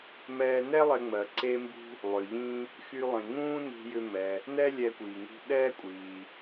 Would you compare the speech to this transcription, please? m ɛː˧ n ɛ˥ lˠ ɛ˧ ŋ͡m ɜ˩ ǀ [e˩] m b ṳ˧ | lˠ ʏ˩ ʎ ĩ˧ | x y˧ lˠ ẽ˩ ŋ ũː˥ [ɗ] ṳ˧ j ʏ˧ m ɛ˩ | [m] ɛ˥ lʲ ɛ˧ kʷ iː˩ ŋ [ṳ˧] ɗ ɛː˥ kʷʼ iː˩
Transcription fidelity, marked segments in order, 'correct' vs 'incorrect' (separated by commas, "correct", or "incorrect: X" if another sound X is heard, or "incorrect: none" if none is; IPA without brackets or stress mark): incorrect: e˧, incorrect: n, incorrect: n, correct